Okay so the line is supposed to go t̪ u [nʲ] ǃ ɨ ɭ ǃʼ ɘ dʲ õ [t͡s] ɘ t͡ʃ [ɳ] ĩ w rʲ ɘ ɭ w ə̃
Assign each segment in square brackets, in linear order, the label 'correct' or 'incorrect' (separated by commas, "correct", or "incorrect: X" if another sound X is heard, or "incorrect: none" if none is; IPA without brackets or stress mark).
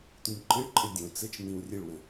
correct, correct, incorrect: n̪